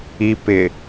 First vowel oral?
yes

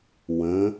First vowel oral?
no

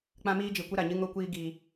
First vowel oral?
no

